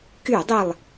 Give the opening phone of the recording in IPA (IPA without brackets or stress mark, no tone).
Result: k